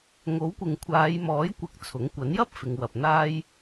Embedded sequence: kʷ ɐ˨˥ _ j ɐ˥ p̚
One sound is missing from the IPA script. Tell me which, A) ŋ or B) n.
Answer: B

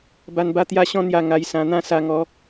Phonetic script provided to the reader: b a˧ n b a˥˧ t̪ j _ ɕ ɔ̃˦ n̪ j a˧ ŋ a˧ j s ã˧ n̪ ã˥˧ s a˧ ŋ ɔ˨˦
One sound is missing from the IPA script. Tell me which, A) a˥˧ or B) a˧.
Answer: A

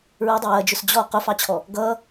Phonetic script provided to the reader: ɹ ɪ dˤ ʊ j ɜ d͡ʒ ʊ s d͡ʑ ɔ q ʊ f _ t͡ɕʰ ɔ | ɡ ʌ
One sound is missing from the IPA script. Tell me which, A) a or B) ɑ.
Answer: B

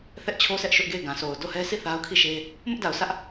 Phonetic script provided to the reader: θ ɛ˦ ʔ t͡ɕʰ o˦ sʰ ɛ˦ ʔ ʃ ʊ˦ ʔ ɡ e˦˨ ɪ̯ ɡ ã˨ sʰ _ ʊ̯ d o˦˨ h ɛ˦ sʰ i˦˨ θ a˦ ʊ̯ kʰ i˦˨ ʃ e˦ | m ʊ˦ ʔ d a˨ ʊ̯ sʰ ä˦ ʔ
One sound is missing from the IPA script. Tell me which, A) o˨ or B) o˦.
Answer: A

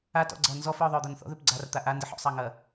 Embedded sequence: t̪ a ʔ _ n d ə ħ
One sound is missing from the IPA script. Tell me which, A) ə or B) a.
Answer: B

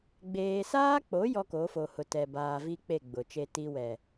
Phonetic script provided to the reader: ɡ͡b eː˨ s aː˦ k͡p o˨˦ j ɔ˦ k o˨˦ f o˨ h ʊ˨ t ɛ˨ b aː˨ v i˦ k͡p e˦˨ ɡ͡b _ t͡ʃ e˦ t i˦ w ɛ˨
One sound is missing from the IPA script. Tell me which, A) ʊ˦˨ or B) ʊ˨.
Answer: B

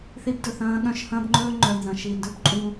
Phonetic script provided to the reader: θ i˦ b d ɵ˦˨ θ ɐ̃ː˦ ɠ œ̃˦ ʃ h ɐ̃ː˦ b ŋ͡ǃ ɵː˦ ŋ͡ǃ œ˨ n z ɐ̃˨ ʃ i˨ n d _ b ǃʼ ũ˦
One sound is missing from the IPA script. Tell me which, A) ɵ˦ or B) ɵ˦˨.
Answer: A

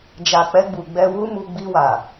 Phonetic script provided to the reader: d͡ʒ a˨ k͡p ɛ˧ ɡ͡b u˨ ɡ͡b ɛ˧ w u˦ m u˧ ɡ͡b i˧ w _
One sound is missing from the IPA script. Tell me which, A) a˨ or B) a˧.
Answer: A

